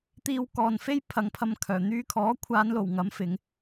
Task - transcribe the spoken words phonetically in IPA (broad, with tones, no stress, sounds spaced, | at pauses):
t̪ iː˧ w k ɔː˨ n f e˥ j pʰ ɐ˨˧ ŋ pʰ ɐ˧ m kʰ œː˨˩ n̪ yː˥ kʰ ɔː˨˥ kʷʰ aː˨˧ n l o˨˩ w ŋ ɐ˨˧ m f ɪ˨˧ ŋ